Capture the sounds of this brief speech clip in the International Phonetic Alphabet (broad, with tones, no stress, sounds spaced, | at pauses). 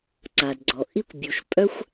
ǀ a˨ d ɡ͡ǀ ɔ˨ ʔ i˦ kʷ bʲ u˨ ʃ pʼ œ˦ xʷ